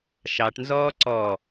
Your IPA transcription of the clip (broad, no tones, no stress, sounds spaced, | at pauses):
ʃ ɑ ʈ n z ɔː ǀ ɔ